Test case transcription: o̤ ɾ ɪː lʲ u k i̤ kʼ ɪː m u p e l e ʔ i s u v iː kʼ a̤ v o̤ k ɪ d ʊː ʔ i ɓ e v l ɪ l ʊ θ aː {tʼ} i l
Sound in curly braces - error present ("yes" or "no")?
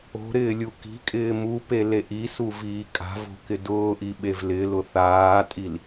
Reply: no